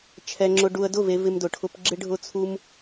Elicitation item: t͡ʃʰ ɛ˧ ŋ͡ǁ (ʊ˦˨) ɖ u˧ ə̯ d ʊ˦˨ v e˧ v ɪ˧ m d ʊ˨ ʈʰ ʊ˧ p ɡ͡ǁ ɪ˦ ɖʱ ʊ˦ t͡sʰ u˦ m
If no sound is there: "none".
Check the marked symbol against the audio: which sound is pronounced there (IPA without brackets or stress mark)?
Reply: ʊ˧